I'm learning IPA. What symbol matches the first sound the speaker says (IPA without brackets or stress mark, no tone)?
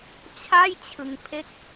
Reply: t͡ɕʰ